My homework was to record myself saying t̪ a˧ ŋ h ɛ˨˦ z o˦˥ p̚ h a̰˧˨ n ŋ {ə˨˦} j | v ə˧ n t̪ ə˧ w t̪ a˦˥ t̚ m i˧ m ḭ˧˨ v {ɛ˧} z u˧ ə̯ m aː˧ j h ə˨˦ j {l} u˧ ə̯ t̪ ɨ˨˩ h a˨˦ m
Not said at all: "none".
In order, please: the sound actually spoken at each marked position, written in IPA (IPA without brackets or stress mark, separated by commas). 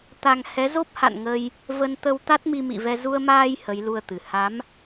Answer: ə˧, ɛ˧, l